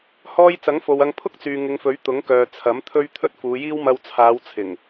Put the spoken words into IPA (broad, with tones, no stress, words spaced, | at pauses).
hɔː˥j t͡sɐ˨˥ŋfo˨wɐ˧ŋ pʰʊ˥k̚t͡syː˨ ŋɪ˨˧ŋfɵ˨˥ɥ t̪ʊ˨˥ŋkœː˨ t͡sʰɐ˨˥m t̪ʰɵ˥ɥ t̪ʰɵ˥t̚fuː˨˧jiː˥w mɐ˧wt͡sʰaː˨˧wt͡sʰɪ˨˩ŋ